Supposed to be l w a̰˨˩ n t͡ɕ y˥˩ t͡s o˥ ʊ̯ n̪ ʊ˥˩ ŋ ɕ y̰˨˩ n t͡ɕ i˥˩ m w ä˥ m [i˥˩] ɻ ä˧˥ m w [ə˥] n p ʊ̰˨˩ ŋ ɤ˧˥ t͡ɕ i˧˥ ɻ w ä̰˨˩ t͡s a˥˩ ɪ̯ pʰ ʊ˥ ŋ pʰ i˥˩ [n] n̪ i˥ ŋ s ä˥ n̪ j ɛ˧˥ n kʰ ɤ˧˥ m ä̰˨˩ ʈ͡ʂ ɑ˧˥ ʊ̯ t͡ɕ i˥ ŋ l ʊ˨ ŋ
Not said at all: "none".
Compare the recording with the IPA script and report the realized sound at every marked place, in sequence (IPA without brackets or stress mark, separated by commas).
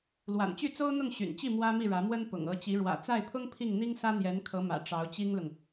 i˥˩, ə˥, ŋ